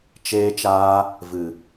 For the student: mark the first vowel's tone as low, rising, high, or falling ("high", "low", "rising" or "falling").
high